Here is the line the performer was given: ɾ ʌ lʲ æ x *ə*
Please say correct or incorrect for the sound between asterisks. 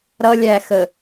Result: correct